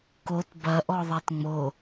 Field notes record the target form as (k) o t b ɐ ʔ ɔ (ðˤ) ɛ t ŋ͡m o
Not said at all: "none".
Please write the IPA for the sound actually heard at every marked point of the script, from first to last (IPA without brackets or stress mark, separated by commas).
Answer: k, ðˤ